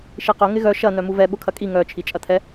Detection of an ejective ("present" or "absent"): present